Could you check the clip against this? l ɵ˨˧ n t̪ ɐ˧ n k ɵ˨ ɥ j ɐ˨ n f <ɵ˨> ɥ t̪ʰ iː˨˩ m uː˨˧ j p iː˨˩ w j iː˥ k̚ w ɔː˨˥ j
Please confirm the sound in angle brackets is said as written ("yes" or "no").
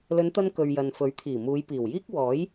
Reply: no